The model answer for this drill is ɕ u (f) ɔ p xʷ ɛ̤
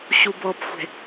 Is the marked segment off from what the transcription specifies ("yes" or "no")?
yes